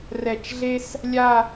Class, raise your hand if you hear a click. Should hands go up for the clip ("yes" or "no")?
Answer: no